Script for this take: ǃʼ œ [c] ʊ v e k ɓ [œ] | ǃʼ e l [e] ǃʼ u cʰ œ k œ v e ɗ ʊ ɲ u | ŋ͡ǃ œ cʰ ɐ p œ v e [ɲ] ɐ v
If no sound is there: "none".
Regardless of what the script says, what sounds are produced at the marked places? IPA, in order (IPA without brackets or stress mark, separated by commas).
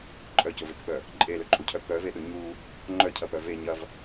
c, œ, ø, ɲ